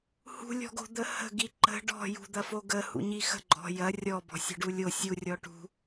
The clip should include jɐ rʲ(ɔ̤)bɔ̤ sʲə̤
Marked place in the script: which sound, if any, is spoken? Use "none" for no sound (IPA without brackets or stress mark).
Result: ɔ